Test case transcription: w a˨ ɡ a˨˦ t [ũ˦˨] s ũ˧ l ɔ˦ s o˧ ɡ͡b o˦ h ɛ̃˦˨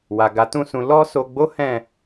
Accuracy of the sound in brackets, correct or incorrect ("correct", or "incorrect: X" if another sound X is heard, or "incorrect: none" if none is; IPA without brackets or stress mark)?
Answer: correct